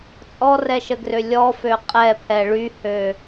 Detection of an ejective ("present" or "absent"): present